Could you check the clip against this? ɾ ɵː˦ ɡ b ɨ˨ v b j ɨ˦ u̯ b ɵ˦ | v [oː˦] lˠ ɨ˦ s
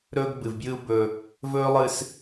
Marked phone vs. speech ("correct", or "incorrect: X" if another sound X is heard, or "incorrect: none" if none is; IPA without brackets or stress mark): incorrect: ɵː˦